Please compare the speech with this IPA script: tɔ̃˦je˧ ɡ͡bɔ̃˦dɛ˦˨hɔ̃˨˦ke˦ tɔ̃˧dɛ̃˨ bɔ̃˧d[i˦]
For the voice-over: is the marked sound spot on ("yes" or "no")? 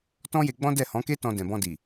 no